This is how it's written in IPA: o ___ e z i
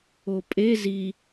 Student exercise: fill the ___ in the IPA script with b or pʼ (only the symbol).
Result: pʼ